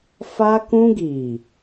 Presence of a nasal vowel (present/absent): present